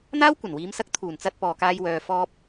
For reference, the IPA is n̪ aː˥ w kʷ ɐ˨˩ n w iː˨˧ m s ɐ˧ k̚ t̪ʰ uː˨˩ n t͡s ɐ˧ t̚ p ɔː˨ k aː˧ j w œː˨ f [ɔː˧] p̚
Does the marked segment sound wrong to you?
no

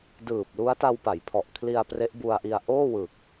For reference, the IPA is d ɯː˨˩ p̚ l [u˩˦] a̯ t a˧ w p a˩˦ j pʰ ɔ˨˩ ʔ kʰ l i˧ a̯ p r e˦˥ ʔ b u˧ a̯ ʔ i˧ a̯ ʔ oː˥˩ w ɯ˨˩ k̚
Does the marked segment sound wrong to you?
yes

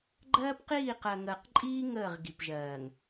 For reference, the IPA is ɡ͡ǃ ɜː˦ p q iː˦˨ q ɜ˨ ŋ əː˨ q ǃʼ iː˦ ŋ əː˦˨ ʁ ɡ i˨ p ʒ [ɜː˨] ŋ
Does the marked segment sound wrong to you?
no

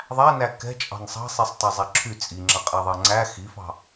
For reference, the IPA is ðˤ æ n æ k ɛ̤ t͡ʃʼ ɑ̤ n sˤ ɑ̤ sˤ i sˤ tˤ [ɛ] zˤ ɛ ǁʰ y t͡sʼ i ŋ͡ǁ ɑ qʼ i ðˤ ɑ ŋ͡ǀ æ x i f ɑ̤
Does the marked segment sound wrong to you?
no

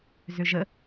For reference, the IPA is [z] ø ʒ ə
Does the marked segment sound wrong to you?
no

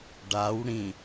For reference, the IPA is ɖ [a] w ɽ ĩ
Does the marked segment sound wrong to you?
no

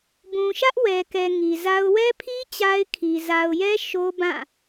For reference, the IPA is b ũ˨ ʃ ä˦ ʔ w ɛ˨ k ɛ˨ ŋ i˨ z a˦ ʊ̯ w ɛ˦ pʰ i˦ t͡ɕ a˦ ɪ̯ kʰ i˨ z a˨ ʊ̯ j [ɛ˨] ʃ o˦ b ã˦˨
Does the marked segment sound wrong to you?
yes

